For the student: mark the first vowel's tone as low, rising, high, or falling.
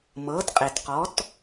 rising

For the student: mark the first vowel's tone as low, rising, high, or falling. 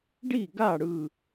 falling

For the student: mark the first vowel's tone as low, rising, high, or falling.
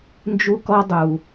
high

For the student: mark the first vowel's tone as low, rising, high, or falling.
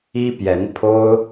high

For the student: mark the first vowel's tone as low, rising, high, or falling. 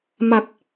low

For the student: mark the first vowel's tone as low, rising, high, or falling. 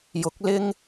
rising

